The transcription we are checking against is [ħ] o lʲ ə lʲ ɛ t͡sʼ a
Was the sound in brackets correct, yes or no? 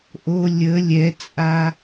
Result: no